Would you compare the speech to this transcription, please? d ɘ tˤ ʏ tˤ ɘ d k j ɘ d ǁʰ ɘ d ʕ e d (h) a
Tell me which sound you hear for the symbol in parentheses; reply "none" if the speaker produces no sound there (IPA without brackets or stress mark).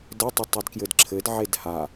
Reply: h